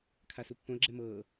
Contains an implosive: no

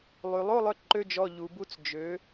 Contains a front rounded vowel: yes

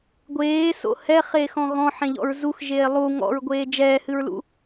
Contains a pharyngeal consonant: yes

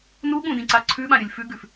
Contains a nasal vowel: yes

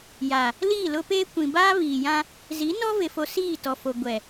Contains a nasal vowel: yes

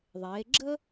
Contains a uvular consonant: no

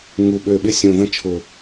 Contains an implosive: yes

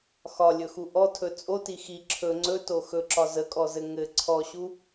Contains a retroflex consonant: no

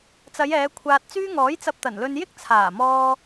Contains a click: no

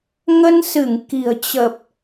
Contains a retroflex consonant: no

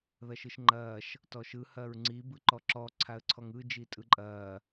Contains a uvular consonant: no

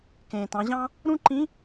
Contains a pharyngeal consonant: no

